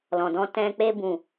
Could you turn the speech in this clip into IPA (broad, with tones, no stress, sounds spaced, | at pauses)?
l ɔ̃˨ d ɔ̃˧ t ɛ̃˧ k͡p e˦ b ũ˦˨